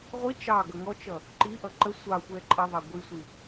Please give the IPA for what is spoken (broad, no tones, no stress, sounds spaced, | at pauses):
ʁʷ i t͡ʃ ɑ ɡ ʌ ŋ ɔ t͡ʃ ʌ | ǃ i ʔ ʌ ǃ ə sʷ ɑ xʷ ɛ ǃʼ ʌ ðˤ ɑ ɡʷ i sʷ i